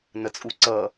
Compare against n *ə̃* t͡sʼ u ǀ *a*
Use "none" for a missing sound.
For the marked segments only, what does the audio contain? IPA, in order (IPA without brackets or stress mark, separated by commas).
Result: ə, ʌ